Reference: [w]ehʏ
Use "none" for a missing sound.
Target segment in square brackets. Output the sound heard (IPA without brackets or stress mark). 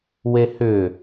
w